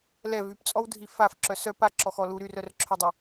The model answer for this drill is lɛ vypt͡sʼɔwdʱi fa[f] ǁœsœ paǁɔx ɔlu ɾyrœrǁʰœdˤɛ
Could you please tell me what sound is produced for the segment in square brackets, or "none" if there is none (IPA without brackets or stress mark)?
f